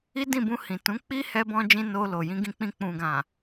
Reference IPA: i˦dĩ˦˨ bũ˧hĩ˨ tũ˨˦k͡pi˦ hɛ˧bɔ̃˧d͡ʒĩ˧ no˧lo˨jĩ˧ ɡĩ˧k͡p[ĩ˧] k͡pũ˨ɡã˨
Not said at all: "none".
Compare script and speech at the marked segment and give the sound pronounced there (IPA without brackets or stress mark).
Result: ĩ˧